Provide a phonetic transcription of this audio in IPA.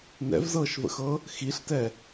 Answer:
n ɛ̰ v z ɤː ʃ v ə̰ x ɤ | x i ɬ t ɛ

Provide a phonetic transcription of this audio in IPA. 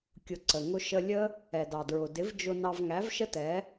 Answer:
kʲ ʊ˧ ǀ ə˨ ŋ ʊ˦ ʃ ə˧ lʲ ə˦ | ɛ˨ d ɑ˨ d ɹ ʊ˨ d ɪ˨˦ v d͡ʒ ʊ˧ n ɑ˧ v ŋ æ˨˦ v ʃ ə˦ t ɛ˨˦

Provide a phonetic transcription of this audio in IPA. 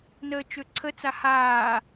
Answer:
n əː t͡ʃ ø ǀʰ ə t͡s a h aː

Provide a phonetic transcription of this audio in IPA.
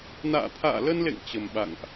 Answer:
n a̰ː˧˨ t̪ʰ a̰ː˧˨ l ə˧ n l ḛ˧˨ ŋ t͡ɕ ə˨˩ m ɓ a̰˧˨ ŋ ʔ

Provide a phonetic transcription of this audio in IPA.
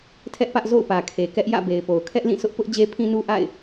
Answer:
tʰ ɛ˦ ʔ p ä˦ ʔ z o̰˦˨ ʊ̯ p ä˨ kʰ e˨ k ɛ˦ ʔ j ä̰˦˨ b e˨ ɪ̯ p o˨ ʊ̯ kʰ ɛ˦ ʔ l ĩ˦˨ sʰ ʊ˦ ʔ p ʊ˦ ʔ d͡ʑ e˦ pʰ ĩ˦ n u˦ ʔ a̰˦˨ ɪ̯

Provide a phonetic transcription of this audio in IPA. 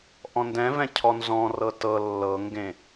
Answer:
ʔ ɔ̃ n d ɛ̃ v ɛ̃ cʰ ɔ n z ɔ̃ r ɤ t ɤ lː ɤ ŋ ɡ ẽ

